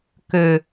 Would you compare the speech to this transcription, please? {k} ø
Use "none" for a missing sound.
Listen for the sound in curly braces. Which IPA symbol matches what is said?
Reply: k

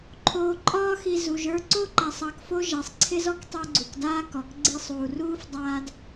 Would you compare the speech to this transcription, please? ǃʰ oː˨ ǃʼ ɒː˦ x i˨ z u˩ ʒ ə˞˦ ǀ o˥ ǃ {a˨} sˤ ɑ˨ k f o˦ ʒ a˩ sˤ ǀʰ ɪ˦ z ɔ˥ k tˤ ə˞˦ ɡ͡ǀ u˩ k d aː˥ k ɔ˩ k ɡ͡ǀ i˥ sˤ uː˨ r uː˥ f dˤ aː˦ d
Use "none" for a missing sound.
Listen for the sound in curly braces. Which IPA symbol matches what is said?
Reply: a˨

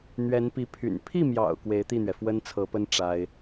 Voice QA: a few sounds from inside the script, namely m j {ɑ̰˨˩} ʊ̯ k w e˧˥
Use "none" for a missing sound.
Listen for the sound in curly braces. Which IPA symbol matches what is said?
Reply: ɑ̰˨˩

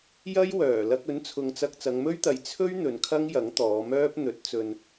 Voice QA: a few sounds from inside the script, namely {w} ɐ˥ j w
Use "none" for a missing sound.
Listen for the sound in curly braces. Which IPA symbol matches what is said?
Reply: j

